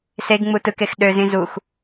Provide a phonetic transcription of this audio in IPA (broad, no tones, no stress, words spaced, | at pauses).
seɡŋ͡mu tɯkex ɗøzĩ zux